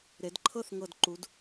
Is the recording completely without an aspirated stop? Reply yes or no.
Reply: no